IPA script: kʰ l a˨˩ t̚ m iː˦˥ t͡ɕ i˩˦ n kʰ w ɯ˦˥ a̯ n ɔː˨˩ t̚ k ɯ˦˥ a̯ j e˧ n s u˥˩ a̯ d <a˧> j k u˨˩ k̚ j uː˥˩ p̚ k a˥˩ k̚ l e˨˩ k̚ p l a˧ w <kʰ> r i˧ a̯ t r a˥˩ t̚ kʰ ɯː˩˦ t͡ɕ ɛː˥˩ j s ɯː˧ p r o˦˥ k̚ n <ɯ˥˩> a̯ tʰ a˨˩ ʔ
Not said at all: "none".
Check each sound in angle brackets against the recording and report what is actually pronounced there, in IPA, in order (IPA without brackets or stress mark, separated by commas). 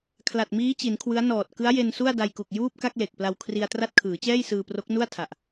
a˧, kʰ, u˥˩